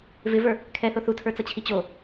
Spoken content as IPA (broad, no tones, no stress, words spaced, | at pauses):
vɪvə˞ | kʰɛθo θutʰə˞t͡sʌt͡ɕʰi t͡ɕo